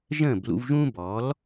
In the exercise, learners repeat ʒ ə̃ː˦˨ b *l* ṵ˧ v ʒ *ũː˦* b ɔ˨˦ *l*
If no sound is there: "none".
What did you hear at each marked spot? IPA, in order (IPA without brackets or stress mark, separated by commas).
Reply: l, ũː˦, l